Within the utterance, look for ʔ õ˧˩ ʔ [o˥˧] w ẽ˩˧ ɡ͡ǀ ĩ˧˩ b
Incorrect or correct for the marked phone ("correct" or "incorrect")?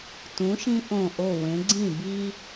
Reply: incorrect